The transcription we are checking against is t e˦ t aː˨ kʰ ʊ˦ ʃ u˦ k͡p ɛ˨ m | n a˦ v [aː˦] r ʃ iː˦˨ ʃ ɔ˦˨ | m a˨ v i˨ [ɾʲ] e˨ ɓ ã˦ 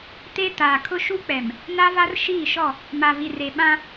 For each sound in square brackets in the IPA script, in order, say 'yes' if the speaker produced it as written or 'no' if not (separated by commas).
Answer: no, no